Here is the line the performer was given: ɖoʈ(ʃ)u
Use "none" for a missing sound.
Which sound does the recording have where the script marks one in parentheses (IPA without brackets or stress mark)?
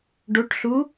ɬ